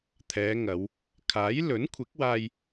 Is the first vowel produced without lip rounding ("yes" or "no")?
yes